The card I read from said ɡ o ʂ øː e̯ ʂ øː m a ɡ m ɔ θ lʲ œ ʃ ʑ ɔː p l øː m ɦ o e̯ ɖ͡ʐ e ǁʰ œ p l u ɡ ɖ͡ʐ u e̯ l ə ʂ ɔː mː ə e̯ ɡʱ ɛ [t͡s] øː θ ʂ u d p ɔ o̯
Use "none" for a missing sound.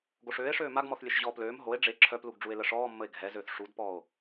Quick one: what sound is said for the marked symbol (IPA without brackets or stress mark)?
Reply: z